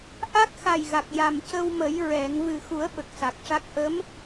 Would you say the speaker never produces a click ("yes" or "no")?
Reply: yes